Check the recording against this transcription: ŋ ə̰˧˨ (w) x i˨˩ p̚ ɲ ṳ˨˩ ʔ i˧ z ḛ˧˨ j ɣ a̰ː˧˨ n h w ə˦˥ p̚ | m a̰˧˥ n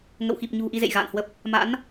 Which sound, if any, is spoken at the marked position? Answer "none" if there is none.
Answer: w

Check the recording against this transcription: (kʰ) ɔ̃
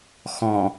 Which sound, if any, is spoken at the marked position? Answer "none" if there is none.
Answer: x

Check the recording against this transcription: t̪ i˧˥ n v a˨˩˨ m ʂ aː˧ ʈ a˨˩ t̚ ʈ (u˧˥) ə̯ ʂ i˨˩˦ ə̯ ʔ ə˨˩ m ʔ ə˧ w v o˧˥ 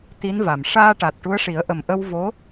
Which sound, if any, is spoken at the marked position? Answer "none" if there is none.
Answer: u˧˥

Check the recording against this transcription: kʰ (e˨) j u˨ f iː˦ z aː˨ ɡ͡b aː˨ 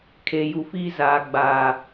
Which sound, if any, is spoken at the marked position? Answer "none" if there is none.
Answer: e˨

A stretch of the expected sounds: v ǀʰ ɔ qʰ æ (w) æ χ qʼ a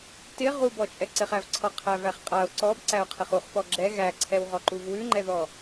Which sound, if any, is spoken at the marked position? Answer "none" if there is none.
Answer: v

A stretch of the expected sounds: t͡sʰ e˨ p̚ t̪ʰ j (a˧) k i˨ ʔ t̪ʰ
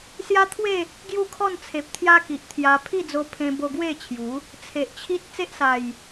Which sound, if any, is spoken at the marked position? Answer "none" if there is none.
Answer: a˦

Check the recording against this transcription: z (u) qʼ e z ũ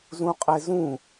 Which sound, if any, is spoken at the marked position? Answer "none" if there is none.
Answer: ũ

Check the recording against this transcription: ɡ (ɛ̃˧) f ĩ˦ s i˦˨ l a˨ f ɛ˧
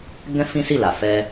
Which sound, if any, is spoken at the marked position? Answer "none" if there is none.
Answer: ɛ̃˦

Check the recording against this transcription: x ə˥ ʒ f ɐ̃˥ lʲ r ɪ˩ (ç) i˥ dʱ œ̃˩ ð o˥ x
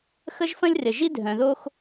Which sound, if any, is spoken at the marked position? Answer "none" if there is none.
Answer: ʒ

